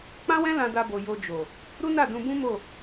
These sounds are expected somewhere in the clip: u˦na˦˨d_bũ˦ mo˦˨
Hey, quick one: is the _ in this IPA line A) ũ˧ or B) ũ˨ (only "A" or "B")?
A